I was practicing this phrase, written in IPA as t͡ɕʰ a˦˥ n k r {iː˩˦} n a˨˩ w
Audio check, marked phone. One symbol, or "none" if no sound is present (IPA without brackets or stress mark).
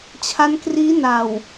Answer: iː˦˥